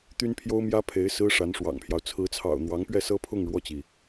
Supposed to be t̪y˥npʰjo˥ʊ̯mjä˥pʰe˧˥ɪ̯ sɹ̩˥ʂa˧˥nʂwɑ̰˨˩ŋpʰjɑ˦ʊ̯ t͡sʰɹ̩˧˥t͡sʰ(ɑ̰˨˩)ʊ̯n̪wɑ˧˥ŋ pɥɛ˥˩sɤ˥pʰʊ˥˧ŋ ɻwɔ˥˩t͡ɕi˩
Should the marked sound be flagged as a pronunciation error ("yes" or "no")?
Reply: no